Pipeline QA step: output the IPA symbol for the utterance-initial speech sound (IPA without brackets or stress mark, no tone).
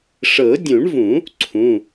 ʂ